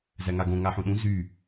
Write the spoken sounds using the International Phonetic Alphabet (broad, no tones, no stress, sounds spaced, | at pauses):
z æ ŋ a ɡ õ ŋ a ħ ũ ɗ ũ z y